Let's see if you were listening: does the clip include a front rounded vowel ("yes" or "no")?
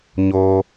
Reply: no